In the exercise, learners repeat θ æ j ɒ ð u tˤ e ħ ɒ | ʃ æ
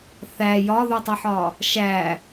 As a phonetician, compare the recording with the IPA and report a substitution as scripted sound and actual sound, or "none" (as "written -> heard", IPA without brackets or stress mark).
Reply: none